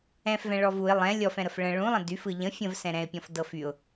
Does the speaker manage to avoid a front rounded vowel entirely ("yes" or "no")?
no